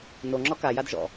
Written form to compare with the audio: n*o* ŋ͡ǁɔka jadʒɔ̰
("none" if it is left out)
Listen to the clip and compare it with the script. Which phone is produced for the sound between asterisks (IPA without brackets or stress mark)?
o